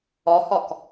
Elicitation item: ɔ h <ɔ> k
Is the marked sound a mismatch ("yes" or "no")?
no